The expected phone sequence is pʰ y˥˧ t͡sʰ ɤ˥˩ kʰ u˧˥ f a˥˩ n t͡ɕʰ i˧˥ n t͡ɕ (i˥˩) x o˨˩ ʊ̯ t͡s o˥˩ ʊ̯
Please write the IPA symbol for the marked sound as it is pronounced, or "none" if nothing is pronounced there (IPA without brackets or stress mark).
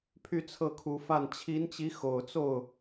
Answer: i˧˥